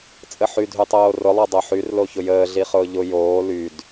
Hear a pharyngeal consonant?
yes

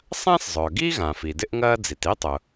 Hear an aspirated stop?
no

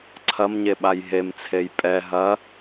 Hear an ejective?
yes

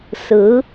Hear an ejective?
no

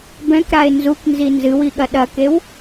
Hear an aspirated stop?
no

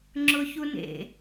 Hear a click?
yes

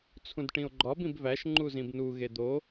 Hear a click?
yes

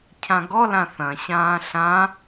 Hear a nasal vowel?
yes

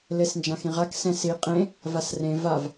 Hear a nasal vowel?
yes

